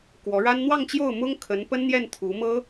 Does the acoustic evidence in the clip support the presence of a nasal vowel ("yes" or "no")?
no